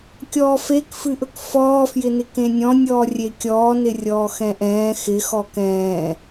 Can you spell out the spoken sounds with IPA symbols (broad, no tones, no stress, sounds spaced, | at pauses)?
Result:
kʲ ɔː f e k f ɨ ʔ ɵ k f ɔː f j ɪ n ɪ k ẽ nʲ ɔ̃ nʲ ɔː rʲ e kʲ ɔː n ɪ rʲ ɔː x ɛ̃ ʔ ɛ̃ː x ɪ x ɔ k ɛ̃ː